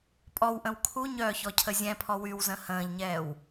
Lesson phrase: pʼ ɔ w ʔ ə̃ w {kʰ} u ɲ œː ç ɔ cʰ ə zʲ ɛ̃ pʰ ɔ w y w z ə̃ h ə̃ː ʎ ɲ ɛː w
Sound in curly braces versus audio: correct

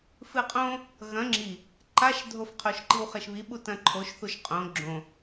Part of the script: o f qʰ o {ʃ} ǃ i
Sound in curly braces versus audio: correct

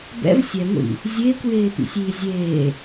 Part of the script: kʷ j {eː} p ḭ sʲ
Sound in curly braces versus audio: correct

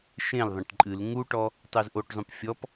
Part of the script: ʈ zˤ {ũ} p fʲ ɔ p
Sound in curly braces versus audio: correct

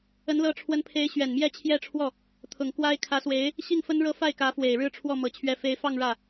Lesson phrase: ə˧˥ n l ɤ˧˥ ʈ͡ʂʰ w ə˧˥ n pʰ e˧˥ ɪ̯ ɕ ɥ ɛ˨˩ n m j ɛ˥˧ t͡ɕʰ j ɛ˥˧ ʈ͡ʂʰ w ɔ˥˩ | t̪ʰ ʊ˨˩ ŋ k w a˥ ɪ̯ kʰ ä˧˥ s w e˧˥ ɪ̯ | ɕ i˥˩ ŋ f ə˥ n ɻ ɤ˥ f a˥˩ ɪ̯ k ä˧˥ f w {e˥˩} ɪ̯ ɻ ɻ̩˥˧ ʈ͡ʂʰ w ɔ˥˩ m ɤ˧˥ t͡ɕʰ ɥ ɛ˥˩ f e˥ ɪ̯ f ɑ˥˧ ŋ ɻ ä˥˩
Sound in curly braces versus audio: incorrect: e˨˩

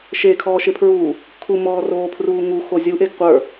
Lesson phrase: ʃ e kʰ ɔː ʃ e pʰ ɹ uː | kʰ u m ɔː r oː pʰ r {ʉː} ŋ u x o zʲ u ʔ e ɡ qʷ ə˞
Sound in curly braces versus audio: incorrect: uː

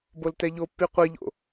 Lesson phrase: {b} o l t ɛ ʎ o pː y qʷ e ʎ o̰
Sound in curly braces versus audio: correct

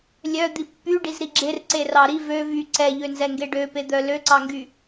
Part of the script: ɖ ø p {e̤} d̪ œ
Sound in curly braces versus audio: incorrect: e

